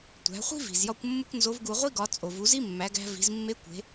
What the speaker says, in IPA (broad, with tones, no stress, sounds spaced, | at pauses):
tʷ æ̤˩˧ χʷ i̤˥ v i̤˩ z j ɒ˧ kʷ mː u˥ kʷ n z o˧˥ v ɡ u˧ ʁʷ i˥ ɡ ɒ˩˧ t͡sʼ o˩ v u˩˧ z i˥ mː æ˩˧ ɡ æ̤˧ v i̤˩˧ z mː e˧˥ kʷ e̤˩˧